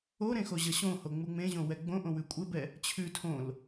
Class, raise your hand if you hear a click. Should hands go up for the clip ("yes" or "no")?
no